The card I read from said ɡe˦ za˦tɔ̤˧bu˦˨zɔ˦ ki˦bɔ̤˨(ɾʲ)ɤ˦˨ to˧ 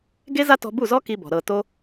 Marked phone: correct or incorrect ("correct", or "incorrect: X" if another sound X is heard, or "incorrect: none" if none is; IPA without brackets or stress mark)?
incorrect: ɾ